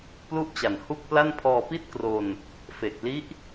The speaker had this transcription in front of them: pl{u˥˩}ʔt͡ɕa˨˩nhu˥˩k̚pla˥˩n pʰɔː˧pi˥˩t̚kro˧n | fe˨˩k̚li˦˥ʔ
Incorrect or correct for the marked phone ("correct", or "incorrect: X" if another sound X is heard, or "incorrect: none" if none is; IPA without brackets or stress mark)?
correct